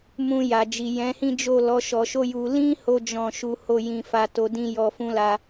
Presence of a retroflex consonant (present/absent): absent